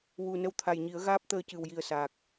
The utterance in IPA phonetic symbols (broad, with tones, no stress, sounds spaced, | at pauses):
w u˧ n ə˧ w t̪ʰ a˨˩ j ɲ i˨˩˦ ə̯ ɣ aː˦˥ p̚ t̪ əː˧ c ɨ˨˩ w j i˨˩ ə̯ s aː˨˩ k̚